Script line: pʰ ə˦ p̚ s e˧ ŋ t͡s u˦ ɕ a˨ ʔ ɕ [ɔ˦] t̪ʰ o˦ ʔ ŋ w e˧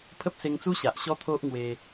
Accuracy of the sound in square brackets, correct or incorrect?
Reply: correct